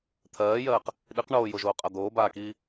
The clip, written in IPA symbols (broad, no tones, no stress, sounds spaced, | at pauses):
t̪ʰ ɜː j ɜː q | ɗ i q ɳ oː j o ʒ oː qʼ a d̪ oː b aː k iː